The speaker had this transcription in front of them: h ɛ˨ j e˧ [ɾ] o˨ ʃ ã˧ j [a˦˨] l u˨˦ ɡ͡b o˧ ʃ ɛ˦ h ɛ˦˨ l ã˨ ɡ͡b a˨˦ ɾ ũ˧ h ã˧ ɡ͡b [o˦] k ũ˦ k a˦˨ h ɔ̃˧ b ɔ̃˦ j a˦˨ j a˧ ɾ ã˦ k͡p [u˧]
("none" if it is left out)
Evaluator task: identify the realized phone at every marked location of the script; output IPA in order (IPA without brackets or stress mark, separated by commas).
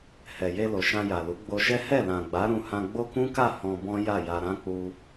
l, a˨, o˦, u˧